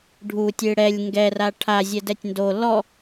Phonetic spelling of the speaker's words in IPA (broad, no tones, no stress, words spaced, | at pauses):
ɖʱutʲɨ ɽɛlʲ ŋɡɛra ʈʰa zʲɛdɛtʲndo lɔ